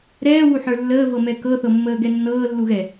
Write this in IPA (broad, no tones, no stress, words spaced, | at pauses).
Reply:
ɾɛːwuħə˞ lːəːvɤmɛ kɤθɤmːəːɡɛ nːɤːlːuɣɛ